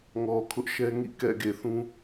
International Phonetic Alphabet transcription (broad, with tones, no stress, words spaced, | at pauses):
ŋɔ˨kʰʊ˦ʔʃɛ˦ ŋḭ˦˨kɛ̰˦˨ ɡe˨θũ˦